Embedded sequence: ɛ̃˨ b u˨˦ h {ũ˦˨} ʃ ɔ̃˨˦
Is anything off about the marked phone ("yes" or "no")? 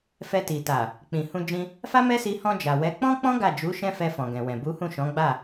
no